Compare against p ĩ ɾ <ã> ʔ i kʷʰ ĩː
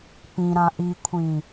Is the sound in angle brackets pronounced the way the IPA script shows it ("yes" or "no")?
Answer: yes